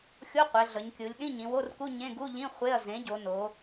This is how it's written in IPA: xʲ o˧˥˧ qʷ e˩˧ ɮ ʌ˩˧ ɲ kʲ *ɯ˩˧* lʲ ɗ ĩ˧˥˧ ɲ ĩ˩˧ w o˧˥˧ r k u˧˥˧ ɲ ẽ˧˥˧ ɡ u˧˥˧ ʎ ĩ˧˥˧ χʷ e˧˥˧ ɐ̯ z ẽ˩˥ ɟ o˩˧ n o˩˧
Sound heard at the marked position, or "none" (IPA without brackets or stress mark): ɯ˩˧